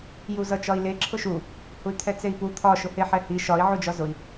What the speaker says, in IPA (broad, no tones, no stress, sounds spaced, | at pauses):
j u z ʌ t͡ʃ ɒ i̯ l e ǁʰ ʊ ʃ u | h u y̯ t̪ʰ ɛ t͡s e i̯ p u t̪ʰ ɒ ʃ ʊ h e ħ ɛ h i ʃ ɒ i̯ ʕ u d͡ʒ ɒ z ʊ i̯